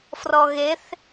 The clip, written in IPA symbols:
frɔɣeθ

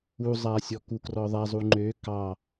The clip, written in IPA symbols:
uzˤasʲɔ kukrɔðˤa zˤuŋ͡ǃø kɑ

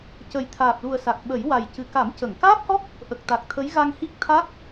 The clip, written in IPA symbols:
cə˨˩j t̪ʰaː˨˩p̚lu˨˩ə̯ sa˨˩k̚ɓə˨˩˦j wa˨˩jcɨ˨˩ ka˨˩˦mcə˨˩˨ŋkaː˦˥p̚hɔ˦˥k̚ | ʔə˨˩k̚t̪a˨˩k̚t̪ʰə˧˥j ɣa˧ŋhi˦˥k̚ t̪ʰa˦˥k̚

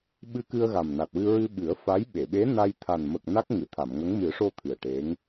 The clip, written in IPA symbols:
ɓɨ˧kɨ˧ə̯ ɣa˨˩mna˨˩t̚wɨ˧ ɹɨ˧ɓɨ˨˩˦ə̯fa˧˥jɓe˨˩˨ ɓe˧˥na˧j t̪ʰa˨˩nmə˨˩k̚ na˦˥k̚ ŋɨ˨˩˨t̪ʰa˨˩˨mŋə˧˥ŋ mɨ˨˩˦ʂo˧ t̪ʰɨ˨˩ə̯ʈe˧˥ŋ

